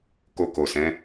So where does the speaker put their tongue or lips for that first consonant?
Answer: velum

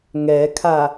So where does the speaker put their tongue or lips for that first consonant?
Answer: velum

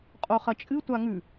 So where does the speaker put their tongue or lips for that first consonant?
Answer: uvula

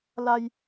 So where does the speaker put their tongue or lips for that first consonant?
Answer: tongue tip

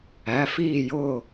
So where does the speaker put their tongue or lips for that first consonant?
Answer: lips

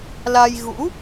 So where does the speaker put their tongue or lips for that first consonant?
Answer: tongue tip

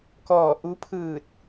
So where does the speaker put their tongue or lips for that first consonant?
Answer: velum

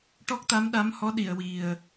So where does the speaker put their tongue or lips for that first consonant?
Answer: retroflex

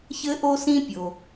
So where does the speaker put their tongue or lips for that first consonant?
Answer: palate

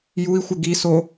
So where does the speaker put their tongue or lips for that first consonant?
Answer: palate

